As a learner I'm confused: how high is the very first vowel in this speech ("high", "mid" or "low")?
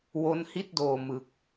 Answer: mid